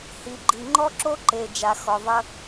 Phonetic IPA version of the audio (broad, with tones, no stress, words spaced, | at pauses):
hi˨ɡ͡ǃi˨ŋ͡ǃɔ˦ ǁo˦ ǃe˨ d͡ʒa˨ xɔ˨ ðˤə˧